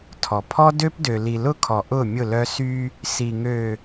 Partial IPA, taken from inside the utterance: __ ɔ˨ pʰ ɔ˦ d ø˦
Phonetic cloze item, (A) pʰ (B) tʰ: B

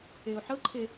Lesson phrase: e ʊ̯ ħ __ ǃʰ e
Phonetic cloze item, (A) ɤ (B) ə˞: A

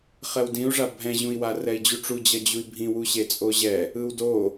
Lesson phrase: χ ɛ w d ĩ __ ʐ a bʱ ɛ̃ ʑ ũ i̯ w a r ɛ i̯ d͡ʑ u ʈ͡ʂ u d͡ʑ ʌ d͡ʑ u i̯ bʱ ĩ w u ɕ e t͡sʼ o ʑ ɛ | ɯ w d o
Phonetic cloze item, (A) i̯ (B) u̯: B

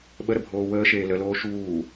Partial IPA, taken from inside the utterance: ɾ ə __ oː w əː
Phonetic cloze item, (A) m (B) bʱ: B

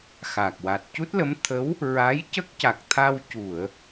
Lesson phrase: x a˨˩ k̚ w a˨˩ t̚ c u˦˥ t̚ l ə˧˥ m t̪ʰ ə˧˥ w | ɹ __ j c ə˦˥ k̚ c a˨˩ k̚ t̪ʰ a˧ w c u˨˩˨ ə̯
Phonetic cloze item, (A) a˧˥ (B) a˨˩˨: A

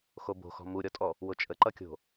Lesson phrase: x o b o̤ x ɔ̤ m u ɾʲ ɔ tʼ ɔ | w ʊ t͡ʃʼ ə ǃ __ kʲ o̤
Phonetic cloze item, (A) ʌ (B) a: A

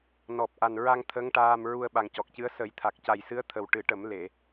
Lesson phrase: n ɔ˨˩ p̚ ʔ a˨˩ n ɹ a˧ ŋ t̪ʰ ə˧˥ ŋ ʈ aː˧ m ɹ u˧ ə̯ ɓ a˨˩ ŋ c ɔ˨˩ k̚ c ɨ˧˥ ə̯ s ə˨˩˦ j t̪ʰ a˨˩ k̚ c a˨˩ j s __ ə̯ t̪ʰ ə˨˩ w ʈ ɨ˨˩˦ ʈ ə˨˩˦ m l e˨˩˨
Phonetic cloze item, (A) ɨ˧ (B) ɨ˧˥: B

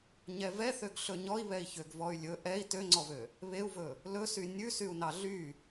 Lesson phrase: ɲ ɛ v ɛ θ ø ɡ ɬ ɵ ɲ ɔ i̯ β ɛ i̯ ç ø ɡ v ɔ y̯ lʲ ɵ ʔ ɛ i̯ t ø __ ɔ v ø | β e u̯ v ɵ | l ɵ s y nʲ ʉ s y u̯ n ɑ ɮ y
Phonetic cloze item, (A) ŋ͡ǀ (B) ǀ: A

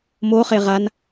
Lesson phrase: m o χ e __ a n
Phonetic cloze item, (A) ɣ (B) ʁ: B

